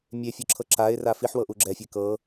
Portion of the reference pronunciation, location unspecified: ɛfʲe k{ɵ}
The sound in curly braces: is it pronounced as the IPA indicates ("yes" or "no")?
no